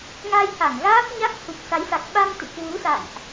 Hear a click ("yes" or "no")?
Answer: no